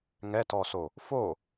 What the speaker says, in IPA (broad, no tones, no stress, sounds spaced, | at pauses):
ŋ ɛ t ɔ s o | f o